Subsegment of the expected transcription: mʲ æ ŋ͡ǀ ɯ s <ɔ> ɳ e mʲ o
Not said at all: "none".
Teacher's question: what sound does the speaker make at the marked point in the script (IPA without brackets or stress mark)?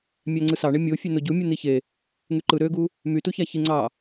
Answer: ɑ